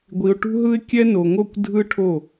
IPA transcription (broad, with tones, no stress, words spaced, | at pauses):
ɡʷi˧ʊ̯ʈṳ˦ɦɯ˦ɪ̯kʲɛ˦ no˨ŋo˦˨kʷ dʱɯ˦ʈʰo˦˨